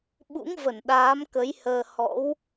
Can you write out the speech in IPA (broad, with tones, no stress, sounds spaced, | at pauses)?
ɓ ṵ˧˥ ŋ v ə˧˩ n ɗ aː˨˦ m k ə˨˦ j h əː˧ h ɔ̰˧˥ w